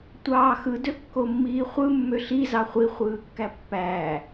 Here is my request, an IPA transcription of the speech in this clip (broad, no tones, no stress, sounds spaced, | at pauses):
tʷ ɑː x ɯ d ø kː o mː iː χʷ ɯ mː ø ɬ i z ɑ χʷ i χʷ ɯː kː æ pː æː